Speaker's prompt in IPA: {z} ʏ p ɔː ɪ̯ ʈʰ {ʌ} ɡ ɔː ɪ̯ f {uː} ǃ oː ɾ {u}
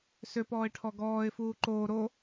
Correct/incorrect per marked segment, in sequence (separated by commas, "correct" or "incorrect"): incorrect, incorrect, correct, incorrect